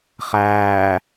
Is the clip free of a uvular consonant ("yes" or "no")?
no